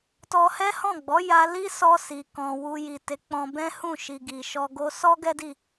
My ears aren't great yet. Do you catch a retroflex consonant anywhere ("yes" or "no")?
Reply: no